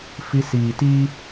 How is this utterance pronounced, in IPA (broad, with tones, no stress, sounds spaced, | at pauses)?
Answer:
f i˧ s iː˨ t i˦